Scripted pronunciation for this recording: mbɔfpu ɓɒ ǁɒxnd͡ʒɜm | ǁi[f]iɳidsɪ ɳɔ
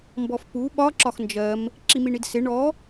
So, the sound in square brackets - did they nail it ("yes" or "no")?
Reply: no